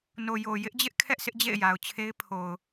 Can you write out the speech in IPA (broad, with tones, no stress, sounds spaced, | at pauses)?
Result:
n o˨ j o˨ j ɪ˦ ʔ d͡ʑ ɪ˦ ʔ kʰ ɛ˦ ʔ sʰ ɪ˦ ʔ d͡ʑ ḛ˦˨ ɪ̯ j a˨ ʊ̯ t͡ɕʰ e˦ ɪ̯ pʰ o˨ ʊ̯